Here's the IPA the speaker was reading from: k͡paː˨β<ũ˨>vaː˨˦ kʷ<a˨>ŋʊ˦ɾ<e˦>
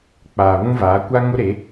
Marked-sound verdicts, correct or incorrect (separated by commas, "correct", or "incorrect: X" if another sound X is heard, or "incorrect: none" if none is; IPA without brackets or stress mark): incorrect: ũ˦, incorrect: a˦, incorrect: e˨˦